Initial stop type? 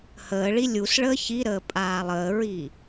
ejective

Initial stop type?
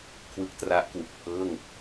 aspirated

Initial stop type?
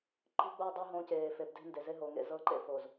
click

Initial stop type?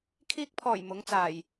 aspirated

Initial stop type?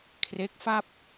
aspirated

